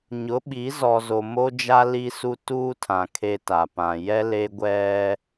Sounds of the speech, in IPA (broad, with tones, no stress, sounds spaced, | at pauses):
ɲ ʊ˨˦ ɓ i˨˦ z ɔ˨ z o˨ m o˦ d͡ʒ a˦ l i˦ s u˦ t uː˦ tʰ ã˨ kʰ e˦ t a˨ p ã˨ j ɛ˦ l e˦ ɡʷ ɛ˦